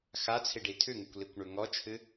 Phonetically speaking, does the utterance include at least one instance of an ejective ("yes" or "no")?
no